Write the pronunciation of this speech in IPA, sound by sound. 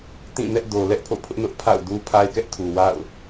t ĩ˦˨ n ɛ˦ ʔ d o˨ l ɛ˦ ʔ pʰ o̰˦˨ pʰ ʊ˦ ʔ n ʊ˦ ʔ pʰ a̰˦˨ ʊ̯ d u˦ pʰ a˦ ɪ̯ k ɛ˦ ʔ tʰ u˨ w a̰˦˨ ʊ̯

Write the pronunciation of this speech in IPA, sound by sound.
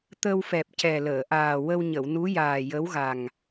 t̪ ə˧ w f ɛ˨˩ p̚ c ɛ˨˩ l əː˨˩˨ ʔ aː˨˩ w ə˧ w ɲ ə˨˩˨ w n u˧˥ j aː˨˩ j ə˧˥ w ɣ a˨˩ ŋ

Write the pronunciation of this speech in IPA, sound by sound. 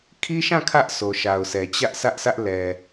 kʰ i˦ ʃ ã˦˨ kʰ ä˦ ʔ sʰ o˨ ʃ a˨ ʊ̯ sʰ ɛ˨ t͡ɕ ä˦ ʔ sʰ ä˦ ʔ sʰ ä˦ ʔ l ɛ˨

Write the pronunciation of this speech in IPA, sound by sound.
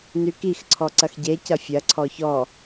n y k i x ǀʰ ɔ ǀ ɐ x ɟ e c ɐ fʲ ɐ ǀʰ ɔ ç ɔ

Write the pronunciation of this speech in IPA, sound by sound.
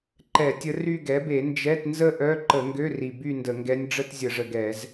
ǃ ɛ˧˩˧ tʲ ə˧˥ r y˥˧ ɡ ɛ˩˥ b e˧˩˧ n d͡ʒ ɛ˧˥˧ t n z ə˥˧ ʔ œ˧˥˧ ǃ ə˧˩˧ ŋ ɡ ø˧˥˧ r i˨˩ b y˥˧ n d ə˧˩˧ ŋ ɡ ɛ˧˥ nʲ ɖ͡ʐ ə˥˧ t zʲ ə˧˩˧ ʐ ə˨˩ ɡ ɛ˧˩˧ z

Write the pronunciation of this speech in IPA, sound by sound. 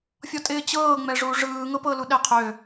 fʲ ɔ tʼ ɪː t͡ɕ ɤː ŋ͡m ɛ ʐ u ʐ ɯː ŋ ɤ p ɤ l u ɗ ɛ qʰ ø

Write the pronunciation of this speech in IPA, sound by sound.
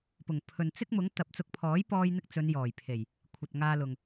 p ʊ˨˩ ŋ pʰ ɵ˨ n t͡s ɪ˥ k̚ m ʊ˨˥ ŋ t̪ ɐ˨ p̚ t͡s ʊ˧ k̚ pʰ ɔː˨˥ j p ɔː˧ j n̪ ɪ˧ k̚ t͡s ɵ˨˧ n j ɔː˨˩ j pʰ e˨˩ j | kʷʰ ɐ˨ t̚ ŋ aː˧ l ʊ˨ ŋ

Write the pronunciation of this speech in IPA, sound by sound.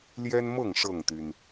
l j ɛ˦ n m ɤ˥˨ ŋ ʂ ɤ˥˨ ŋ t̪ y˩ n

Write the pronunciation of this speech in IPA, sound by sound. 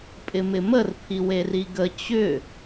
pʼ ɪ m ɪ m ə r pʰ i w e r i ɡ ə t͡ɕ ʏ

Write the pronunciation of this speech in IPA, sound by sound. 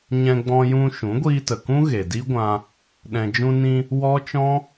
ɲ ɛ̃˧ ɡ͡b ɔ̃˧ j ũ˧ ʃ ũ˨˦ ɡʷ iː˧ t ə˨ k ũ˦ ɣ e˨ d i˦ ɡʷ ã˧ | ɗ ɛ̃˧ d͡ʒ ũ˧ n ĩ˧ | w ɔ˦ t͡ʃ ɔ̃˦

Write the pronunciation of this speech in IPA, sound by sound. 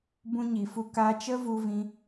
b ũ˧ ɲ i˨ f u˧ k a˦ t͡ʃ ə˦ v u˧ v ĩ˧

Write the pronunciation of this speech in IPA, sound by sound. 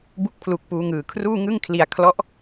b u˥˩ k̚ pʰ l u˦˥ k̚ p uː˦˥ ŋ ɯː˧ kʰ r uː˥˩ ŋ ɯ˥˩ ŋ kʰ l i˧ a̯ kʰ l ɔ˦˥ ʔ

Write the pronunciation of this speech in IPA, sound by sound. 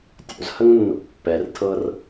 tʲ o̰ z h ə ŋ nː o̰ pː ɛ r tʰ ɤ r

